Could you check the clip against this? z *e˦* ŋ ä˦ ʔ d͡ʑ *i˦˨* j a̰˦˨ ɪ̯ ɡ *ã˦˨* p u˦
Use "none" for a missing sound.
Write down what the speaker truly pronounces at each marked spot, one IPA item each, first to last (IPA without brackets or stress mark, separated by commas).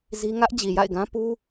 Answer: i˦, i˨, ã˦